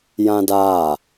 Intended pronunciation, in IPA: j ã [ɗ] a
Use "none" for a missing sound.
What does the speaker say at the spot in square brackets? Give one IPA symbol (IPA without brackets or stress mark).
d